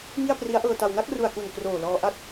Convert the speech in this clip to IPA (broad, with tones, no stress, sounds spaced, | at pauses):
ŋ i˥˩ a̯ p r i˦˥ a̯ ʔ ɤː˧ t a˧ w n a˥˩ k̚ r u˨˩ a̯ k u˨˩ n k r oː˨˩ l ɔː˧ ʔ a˥˩ t̚